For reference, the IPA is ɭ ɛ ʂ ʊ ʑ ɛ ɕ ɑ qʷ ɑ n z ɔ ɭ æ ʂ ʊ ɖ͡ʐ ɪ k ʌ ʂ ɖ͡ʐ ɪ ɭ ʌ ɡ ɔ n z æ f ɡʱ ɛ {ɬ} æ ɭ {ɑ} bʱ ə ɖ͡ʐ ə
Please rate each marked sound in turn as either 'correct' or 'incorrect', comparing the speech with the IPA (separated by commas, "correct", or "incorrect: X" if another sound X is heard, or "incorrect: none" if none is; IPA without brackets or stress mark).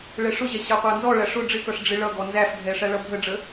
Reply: incorrect: ʂ, incorrect: ʌ